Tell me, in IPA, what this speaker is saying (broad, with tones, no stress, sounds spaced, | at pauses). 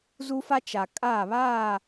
z u˦ f a˦ t͡ʃ a˨ kʼ aː˦˨ β aː˦˨